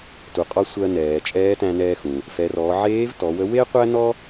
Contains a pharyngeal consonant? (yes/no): yes